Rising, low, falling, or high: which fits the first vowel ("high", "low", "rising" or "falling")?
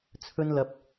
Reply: high